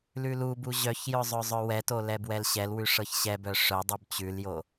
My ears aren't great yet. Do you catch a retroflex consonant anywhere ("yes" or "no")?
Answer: yes